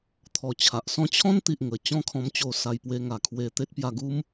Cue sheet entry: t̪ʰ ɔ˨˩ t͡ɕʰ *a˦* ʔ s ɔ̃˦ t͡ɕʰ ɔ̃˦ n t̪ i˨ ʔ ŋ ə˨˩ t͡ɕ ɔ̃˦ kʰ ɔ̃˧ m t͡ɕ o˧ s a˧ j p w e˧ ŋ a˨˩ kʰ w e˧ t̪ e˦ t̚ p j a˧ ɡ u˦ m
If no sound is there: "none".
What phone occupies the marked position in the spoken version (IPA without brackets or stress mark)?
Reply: a˨